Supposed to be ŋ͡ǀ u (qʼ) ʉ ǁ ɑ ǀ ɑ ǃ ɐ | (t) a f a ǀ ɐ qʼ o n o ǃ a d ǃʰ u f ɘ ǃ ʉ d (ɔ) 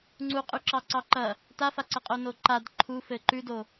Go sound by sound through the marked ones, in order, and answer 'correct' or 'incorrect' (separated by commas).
correct, correct, incorrect